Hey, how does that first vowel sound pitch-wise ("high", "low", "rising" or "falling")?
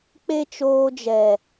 high